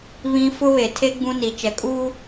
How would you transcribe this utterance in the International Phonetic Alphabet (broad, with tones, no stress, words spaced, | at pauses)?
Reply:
βĩ˦ fʊ˦βe˨tʰe˦ ɡ͡bũ˦ni˨t͡ʃɛ˨kʼuː˦